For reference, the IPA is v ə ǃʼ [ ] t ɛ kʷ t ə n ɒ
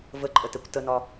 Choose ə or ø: ə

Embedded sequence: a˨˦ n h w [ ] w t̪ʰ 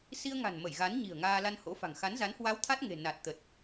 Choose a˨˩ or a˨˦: a˨˦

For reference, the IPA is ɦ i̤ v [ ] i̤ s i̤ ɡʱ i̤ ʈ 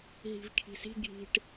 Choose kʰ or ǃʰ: kʰ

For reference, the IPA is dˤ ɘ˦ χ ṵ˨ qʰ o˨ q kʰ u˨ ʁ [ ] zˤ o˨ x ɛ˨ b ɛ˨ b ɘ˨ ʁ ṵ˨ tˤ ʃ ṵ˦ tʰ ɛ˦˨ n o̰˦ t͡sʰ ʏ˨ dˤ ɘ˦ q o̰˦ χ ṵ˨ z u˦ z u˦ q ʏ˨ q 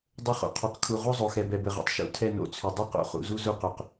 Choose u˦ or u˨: u˦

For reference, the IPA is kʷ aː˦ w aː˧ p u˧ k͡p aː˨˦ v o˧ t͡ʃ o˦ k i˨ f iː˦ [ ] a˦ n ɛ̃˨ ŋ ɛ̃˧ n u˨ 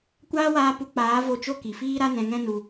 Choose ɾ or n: ɾ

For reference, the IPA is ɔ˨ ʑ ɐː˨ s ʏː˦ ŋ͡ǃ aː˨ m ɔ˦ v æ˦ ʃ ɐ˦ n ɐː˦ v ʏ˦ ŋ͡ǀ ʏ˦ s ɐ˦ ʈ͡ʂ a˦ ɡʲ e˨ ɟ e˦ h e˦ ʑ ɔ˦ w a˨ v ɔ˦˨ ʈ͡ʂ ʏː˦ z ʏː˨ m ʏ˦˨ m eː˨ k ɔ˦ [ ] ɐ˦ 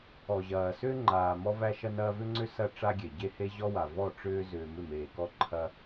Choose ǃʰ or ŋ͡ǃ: ǃʰ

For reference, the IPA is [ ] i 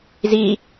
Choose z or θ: z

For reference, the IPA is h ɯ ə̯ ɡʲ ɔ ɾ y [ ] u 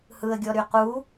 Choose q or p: q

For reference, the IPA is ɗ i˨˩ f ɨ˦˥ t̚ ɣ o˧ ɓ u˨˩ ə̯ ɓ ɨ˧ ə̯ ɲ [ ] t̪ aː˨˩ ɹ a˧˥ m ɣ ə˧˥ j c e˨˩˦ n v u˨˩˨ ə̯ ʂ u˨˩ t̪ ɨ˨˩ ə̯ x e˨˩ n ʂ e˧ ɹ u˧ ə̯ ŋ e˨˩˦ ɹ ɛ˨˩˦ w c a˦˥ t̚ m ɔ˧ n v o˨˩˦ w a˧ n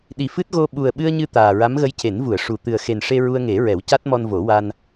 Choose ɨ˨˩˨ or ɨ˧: ɨ˧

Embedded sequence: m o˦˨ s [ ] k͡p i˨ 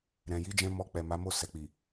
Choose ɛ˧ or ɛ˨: ɛ˨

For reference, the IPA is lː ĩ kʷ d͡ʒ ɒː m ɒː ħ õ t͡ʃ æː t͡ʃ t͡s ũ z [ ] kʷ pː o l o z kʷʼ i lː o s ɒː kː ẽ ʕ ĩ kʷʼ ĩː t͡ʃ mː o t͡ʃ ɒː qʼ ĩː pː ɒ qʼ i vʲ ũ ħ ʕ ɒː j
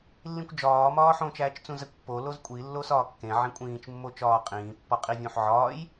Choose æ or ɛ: æ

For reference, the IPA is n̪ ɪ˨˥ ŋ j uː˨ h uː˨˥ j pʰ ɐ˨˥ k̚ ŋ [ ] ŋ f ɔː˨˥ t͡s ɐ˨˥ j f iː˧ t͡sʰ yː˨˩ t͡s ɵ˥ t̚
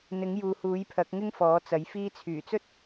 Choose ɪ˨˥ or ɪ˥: ɪ˥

